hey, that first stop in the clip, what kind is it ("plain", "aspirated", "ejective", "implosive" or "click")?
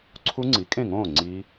click